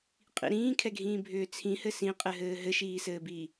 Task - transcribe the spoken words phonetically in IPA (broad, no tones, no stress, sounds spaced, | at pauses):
qʼ ḭ ɾ ĩː kʰ ɛ ɡʱ ĩː bʱ ʏː t͡sʰ ĩ h ɘ s ĩ qʼ ɘ ɦ ɘː ɦ ɘ ʃ iː s ɘː b iː